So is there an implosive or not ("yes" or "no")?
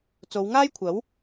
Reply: no